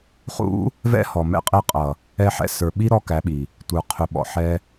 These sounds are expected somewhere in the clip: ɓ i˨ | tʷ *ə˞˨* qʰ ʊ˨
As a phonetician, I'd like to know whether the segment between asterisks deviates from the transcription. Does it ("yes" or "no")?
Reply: no